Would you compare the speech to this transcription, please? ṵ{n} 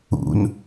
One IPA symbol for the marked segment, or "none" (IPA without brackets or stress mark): n